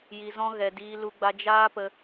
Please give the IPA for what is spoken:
j i˧ z ɔ̃˦ ɣ ɛ˧ d iː˦ l u˦ ɡ͡b a˦ d͡ʒ aː˦ p ə˧

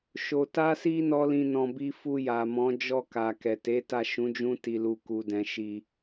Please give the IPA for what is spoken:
ʃ o˨ t a˧ s i˧ n ɔ˦ l ĩ˧ n ɔ̃˧ b i˦ f u˧ j a˨ m ɔ̃˨˦ d͡ʒ ɔ˦˨ k a˨ k ɛ˨ t e˨˦ t a˦˨ ʃ ũ˨˦ d͡ʒ ũ˦ t i˧ l u˧ k u˧ d ɛ̃˧ ʃ i˧

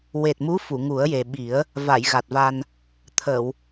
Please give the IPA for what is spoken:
w e˨˩ t̚ m u˧˥ f u˨˩˨ ŋ u˨˩˦ ə̯ j e˨˩ ɓ i˨˩˦ ə̯ | v a˨˩˨ j ɣ a˨˩ t̚ v a˧ n | t̪ʰ ə˨˩˨ w

